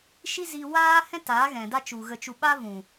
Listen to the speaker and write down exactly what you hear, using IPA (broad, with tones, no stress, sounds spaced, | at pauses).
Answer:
ʃ i˦ z i˧ w aː˦ h ɛ̃˦ t aː˨˦ ɣ ɛ̃˨ d a˦ t͡ʃ u˨ ɣ ə˧ t͡ʃ u˧ ɓ a˦ v ũ˨